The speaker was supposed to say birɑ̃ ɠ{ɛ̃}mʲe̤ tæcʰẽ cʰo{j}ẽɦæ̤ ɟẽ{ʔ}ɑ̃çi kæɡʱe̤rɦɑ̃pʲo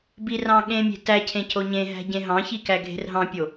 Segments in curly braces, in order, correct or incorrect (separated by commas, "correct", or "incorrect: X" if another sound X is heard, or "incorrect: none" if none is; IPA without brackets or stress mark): incorrect: ẽ, incorrect: ɲ, incorrect: ɦ